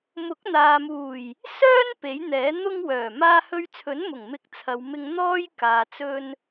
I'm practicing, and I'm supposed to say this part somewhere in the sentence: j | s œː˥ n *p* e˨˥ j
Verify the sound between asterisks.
correct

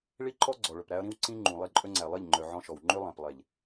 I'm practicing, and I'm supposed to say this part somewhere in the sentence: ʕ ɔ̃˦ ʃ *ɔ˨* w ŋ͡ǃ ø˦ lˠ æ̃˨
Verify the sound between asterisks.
correct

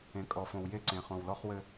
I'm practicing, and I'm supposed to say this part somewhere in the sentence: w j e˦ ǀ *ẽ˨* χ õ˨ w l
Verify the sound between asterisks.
correct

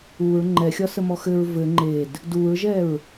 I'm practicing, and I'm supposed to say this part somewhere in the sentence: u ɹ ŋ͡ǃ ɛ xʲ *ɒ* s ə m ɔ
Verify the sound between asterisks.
correct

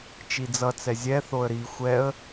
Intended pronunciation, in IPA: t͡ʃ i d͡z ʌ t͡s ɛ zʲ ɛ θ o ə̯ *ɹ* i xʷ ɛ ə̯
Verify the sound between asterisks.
incorrect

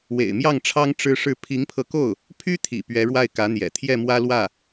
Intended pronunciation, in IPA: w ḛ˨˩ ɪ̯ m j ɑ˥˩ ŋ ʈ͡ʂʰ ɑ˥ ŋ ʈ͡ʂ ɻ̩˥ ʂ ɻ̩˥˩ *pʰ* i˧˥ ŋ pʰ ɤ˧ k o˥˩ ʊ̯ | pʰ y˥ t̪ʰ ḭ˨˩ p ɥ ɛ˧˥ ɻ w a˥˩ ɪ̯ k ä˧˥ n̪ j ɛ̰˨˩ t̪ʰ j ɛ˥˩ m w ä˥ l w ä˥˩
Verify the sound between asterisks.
correct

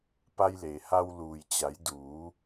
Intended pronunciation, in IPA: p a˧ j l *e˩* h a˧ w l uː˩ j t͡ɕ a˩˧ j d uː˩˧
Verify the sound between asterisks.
correct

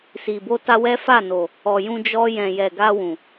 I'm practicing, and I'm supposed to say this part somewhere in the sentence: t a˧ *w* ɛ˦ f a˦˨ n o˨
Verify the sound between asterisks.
correct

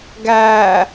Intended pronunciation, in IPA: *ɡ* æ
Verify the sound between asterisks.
correct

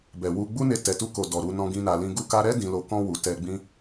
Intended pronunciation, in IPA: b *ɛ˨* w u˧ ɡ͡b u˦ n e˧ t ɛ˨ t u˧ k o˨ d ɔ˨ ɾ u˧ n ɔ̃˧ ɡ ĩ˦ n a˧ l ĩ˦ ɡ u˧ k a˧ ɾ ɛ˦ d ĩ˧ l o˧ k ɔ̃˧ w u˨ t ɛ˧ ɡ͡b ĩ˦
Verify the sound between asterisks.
correct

